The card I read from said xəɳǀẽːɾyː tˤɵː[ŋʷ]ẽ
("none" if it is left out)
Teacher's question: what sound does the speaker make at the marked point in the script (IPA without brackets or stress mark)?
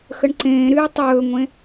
ŋʷ